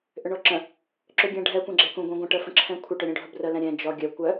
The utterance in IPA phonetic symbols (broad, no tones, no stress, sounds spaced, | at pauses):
ʔ ʏ ɳ ɔ ǁ ə̃ | ǁ ʏ ɡʲ ɛ̃ ɖʱ ɛ kʷ ɛ̃ ɡ͡ǁ ɛ k ũ ɡʷ ɛ̃ ɡʷ ə̃ ʈ ə f ə̃ ǁʰ ɛ̃ kʷʰ ə ʈ ʏ ɾʲ ũ ɖʱ ə b r ə l ɛ̃ ɾʲ ɛ̃ d͡ʒ ɔ ɡʲ œ kʷ œ